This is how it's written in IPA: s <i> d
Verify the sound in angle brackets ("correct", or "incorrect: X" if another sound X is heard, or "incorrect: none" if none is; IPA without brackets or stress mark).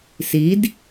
correct